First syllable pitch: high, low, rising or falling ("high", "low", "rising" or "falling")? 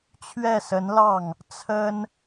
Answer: falling